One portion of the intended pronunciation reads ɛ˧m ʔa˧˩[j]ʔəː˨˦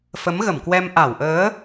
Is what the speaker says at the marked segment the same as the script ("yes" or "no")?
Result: no